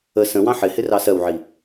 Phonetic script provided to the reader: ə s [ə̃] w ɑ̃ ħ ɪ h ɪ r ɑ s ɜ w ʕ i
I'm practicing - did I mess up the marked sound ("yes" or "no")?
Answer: no